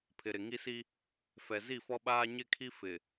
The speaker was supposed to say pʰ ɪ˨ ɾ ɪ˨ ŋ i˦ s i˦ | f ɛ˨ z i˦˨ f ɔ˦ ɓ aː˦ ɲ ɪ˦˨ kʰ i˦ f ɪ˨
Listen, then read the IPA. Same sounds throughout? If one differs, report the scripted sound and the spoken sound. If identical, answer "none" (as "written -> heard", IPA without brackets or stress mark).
none